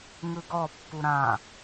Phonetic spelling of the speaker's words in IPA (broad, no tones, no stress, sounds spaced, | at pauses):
ŋ ɯ ɡ ɔ pː u ɾ ã